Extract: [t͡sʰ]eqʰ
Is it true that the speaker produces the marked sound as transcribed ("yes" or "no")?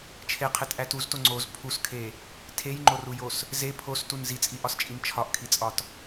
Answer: no